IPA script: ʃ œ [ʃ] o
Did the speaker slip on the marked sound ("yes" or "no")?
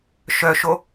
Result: no